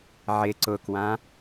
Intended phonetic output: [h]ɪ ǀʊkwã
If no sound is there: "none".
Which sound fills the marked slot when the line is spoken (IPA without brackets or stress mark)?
ʕ